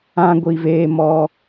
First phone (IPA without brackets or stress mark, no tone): ã